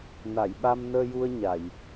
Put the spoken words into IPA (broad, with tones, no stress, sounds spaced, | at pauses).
n a˨˩˨ j ɓ a˧ m n əː˧ j u˧ ə̯ ɲ a˨˩˨ j